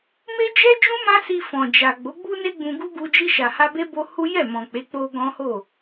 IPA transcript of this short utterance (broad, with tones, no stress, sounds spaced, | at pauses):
m e˦ d͡ʒ ɛ˦ d͡ʒ ũ˦ m ã˦ s i˧ f ɔ̃˨ d͡ʒ a˨ ɡ͡b o˨˦ ɡ͡b u˦ n e˦ ɡ͡b ũ˧ ɡ u˦ ɡ u˧ d͡ʒ i˧ ʃ a˨ h a˧ b e˦ b o˦ h u˦ j ɛ˦˨ m ɔ̃˨ k͡p e˨˦ k͡p o˧ ɡ ɔ̃˦ h o˦˨